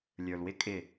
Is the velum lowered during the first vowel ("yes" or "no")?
no